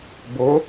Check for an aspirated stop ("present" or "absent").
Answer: absent